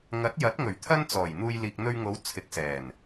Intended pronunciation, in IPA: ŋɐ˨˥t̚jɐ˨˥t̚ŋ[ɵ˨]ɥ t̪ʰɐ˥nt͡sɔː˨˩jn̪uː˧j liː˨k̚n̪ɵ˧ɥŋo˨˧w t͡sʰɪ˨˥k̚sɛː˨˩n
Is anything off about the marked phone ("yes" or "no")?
yes